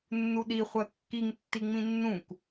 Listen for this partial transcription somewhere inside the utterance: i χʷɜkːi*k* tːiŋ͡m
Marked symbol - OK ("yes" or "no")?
no